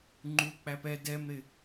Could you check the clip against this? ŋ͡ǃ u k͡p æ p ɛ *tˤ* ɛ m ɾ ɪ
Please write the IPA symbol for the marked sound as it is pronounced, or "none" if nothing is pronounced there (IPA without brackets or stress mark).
d